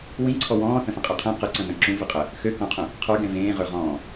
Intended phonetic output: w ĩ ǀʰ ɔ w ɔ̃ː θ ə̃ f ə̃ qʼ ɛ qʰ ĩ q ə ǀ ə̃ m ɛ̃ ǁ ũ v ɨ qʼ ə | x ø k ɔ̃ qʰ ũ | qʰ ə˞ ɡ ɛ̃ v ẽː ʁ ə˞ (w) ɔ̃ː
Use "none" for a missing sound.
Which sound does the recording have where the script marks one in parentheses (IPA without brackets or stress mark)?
ʁ